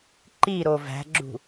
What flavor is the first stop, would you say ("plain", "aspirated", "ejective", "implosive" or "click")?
click